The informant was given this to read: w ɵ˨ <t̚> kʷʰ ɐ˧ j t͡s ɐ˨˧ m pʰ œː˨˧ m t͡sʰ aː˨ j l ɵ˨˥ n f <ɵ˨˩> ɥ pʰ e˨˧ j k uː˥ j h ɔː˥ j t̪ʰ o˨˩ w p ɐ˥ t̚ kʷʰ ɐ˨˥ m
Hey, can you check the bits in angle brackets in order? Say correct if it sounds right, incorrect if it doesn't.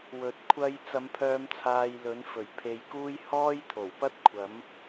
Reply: correct, correct

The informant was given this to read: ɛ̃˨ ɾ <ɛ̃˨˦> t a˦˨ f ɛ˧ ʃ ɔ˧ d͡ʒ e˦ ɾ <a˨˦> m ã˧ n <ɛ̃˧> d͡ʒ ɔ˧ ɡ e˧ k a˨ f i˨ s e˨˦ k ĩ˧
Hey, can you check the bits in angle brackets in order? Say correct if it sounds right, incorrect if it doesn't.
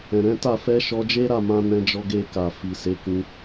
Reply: correct, incorrect: a˦˨, correct

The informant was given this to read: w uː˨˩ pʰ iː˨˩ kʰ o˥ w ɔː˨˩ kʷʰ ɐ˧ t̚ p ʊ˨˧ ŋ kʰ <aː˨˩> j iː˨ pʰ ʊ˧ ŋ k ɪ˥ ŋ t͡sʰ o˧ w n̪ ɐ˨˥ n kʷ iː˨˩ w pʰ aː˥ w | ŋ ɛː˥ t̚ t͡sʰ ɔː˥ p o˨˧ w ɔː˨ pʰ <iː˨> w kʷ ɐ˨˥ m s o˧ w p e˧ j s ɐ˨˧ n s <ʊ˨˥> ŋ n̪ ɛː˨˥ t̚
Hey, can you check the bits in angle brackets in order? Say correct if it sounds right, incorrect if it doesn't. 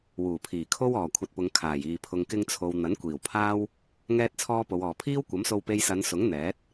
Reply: correct, incorrect: iː˥, correct

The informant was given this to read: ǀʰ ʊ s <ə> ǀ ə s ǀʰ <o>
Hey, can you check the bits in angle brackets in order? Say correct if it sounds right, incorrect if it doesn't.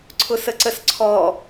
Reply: correct, incorrect: ɔ

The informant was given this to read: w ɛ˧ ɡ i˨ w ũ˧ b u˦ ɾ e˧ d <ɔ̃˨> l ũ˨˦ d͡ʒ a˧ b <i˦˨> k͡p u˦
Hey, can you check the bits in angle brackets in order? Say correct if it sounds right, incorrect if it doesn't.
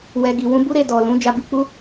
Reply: incorrect: ɔ˨, incorrect: i˧

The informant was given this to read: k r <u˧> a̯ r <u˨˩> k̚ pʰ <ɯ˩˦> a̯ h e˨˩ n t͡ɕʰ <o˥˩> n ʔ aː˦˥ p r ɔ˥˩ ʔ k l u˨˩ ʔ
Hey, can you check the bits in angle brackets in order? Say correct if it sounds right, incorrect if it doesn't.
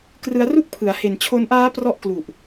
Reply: incorrect: ɯ˧, incorrect: u˥˩, correct, incorrect: o˧

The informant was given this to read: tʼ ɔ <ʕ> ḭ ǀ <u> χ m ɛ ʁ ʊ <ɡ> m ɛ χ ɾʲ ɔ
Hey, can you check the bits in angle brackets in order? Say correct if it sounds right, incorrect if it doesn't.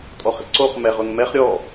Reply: incorrect: χ, incorrect: o, incorrect: ŋ

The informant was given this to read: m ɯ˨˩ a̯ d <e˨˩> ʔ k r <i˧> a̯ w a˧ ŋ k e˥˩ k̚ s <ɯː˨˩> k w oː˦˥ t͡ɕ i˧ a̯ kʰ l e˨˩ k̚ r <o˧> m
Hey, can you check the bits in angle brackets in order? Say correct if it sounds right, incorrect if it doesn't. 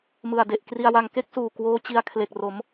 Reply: correct, correct, incorrect: uː˨˩, incorrect: o˩˦

